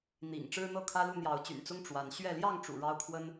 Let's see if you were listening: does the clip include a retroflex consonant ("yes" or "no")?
yes